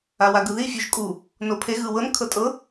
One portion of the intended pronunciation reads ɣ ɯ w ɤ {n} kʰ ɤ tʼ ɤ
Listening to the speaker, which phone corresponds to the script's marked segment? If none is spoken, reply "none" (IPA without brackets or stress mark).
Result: n